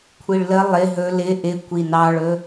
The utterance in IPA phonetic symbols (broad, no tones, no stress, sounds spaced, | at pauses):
kʷʰ i ɭ l ə lˠ ɪ ɦ ɵ l ɪ ʔ ɪ kʷ i n ɑ ɭ ɵ